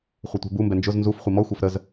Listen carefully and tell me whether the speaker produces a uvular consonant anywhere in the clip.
yes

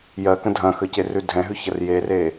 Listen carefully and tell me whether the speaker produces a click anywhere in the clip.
no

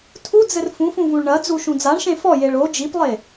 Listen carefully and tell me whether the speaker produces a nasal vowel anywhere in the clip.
yes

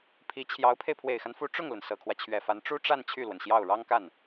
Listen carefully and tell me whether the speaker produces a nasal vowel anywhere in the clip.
no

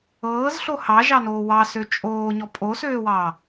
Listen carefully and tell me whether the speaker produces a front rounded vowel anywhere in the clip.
yes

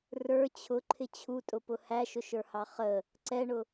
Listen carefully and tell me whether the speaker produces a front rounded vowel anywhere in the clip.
no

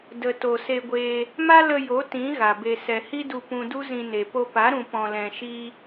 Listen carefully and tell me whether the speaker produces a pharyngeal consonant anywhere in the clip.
no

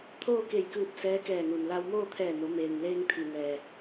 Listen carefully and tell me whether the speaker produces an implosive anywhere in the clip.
no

